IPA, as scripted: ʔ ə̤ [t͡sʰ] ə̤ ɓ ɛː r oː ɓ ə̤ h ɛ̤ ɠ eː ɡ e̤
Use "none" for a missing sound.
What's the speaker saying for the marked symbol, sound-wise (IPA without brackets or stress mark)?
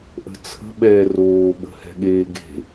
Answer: t͡sʰ